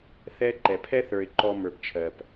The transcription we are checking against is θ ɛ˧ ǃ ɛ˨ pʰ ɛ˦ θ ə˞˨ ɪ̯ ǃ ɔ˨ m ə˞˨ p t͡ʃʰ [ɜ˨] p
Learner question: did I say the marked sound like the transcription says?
yes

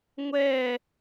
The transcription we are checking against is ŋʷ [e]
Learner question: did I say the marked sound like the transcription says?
no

